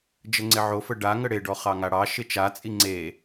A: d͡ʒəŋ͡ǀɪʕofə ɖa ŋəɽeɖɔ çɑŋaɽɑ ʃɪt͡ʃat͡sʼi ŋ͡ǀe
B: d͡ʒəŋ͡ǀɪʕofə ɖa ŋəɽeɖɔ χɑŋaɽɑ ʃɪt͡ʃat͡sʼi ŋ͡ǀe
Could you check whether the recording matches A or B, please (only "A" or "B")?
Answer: B